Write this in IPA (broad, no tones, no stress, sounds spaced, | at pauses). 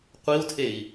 qʷ i u̯ tʰ e i̯